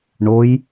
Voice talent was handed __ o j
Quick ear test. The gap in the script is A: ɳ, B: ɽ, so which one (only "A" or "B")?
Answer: A